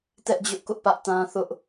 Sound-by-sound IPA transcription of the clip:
tɛ˦ʔd͡ʑʊ˦ʔkʊ˦ʔ pä˦ʔtã˦ θʊ˦ʔ

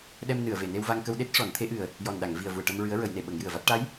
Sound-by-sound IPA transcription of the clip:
ɗɛ˧mnɨ˨˩˨ə̯ve˨˩˨ ne˧wva˧ŋkə˧w ɗe˦˥t̚ʂɔ˨˩˦nt̪ʰe˧˥ʔɨ˨˩ə̯ | jɔ˨˩nɗa˨˩˨ŋ vi˨˩ə̯vu˨˩ə̯ʈə˧m ɹɨ˧˥ə̯ɹə˨˩˦jne˨˩˨ ɓə˨˩˦ŋjɨ˨˩ə̯va˦˥t̚ ʈa˧˥j

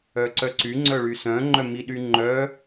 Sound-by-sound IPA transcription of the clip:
œǀœǀy ŋ͡ǀœɭysœ̃ ŋ͡ǃœmiɗyŋ͡ǃœ

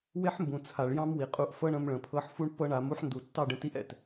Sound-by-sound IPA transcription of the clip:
we˦ħmbũ˨ t͡sʰa˨ɭjɑ̃˦mwi˨qʼu˧ʔ fɤ˦ɳ ə̃˧mɭə̃˨pʰɤ˧ħ fu˦ɳpːɤ˦ɳa˨˦m u˦ħndu˨ tːɑ˦˨ɖə̃˧ ti˦ʔɛ̰˨t

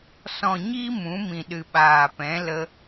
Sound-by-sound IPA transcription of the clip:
sɔ̃˨ɲi˧ mũ˨˦mĩ˨ɗɨ˨ ɓaː˨pɛ̃˨˦ lə˧

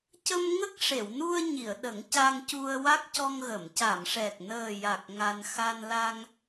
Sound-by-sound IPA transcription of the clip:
cə˧m ŋə˦˥k̚ʂe˨˩˨wnu˧ə̯ɲi˨˩˨ə̯ ɗə˨˩˦ŋca˧ŋcu˧ə̯ wa˦˥k̚cɔ˧ŋɣə˨˩˨m ca˨˩˨mʂɛ˨˩k̚nəː˨˩ja˨˩k̚ ŋa˧n xa˧nla˧ŋ

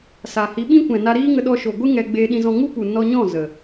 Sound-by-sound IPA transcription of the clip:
sa˨hi˨˦ɓĩ˦kʷɛ̃˨ na˧ɾiː˦ŋə˧ɗɔ˧ ʃo˨ɡʷɨ˦ ŋɛ˧ ɡ͡beː˧ɗĩ˧zɔ̃˧ ŋu˦pu˨ nɔ˧ ɲɔ̃˦˨ zə˨

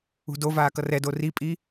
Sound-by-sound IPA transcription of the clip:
ṳdovaː kʌrɛdo ripʼi

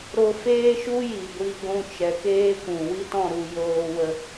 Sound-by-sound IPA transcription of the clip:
ɾo˧feː˦ʃu˦ ji˨ɡʷi˧ ɡʷũ˧t͡ʃɛ˨keː˦ kʷũ˨wi˦tɔ̃˦˨ ɾu˧ joː˧wə˧

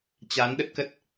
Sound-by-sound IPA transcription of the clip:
t͡ɕa˨˦n ɗə˦˥t̚kə˦˥t̚

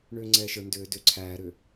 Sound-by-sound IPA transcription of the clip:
ɳʏːŋ͡ǀɛːʃə˞ ndʏː dʏ ǀʰæːɾʏː

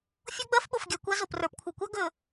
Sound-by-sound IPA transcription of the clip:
fʲo˦ ɡ͡bɜ˦fɓo˨fɡʲa˨ kʷa˦zo˨p rə˞˨pkʷʰə˞˨kʷa˦ ɡɵ˨

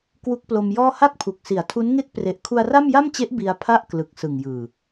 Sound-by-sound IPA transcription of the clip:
kwu˦˥k̚ plo˧mjɔː˥˩ ha˥˩k̚pʰu˨˩k̚si˩˦a̯ tʰu˦˥nŋe˥˩k̚pre˨˩ʔ kʰu˧a̯ra˥˩mja˥˩mt͡ɕe˦˥ʔ bi˧a̯ pʰa˥˩ʔ klɯ˨˩k̚sɯ˨˩ŋjɯː˨˩

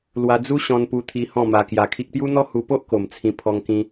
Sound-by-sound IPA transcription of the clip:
lwa˧d͡zu˦ ɕɔ̃˧npu˧t̪ʰi˧ hɔ̃˥˧ma˧kja˧kʰi˦k̚ pju˦n̪ɔ˦hu˧po˦ʔ ko˨˩m t͡sʰĩ˧ pʰɔ˧ŋkĩ˧

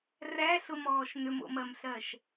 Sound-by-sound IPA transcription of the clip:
ræɬʊmɔːʃ nʏmo̰mɜmɬɜʃ

